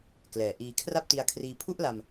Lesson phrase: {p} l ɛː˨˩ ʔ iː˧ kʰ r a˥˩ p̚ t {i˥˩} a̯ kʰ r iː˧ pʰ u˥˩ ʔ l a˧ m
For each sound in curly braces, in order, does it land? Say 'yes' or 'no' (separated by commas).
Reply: no, no